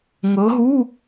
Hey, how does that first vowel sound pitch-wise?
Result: rising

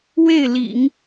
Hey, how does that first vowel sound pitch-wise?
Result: falling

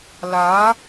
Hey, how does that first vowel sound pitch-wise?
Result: rising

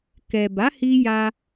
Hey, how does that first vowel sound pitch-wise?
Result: low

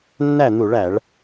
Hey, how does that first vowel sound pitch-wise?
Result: falling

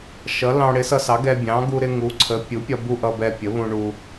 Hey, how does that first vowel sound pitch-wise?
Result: rising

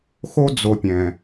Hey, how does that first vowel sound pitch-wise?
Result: high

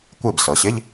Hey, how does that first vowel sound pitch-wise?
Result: falling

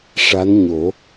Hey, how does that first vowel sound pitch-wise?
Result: rising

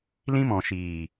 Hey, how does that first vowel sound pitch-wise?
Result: high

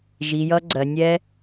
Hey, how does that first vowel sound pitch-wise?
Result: low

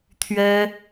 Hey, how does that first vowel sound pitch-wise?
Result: high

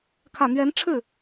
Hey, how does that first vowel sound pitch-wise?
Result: low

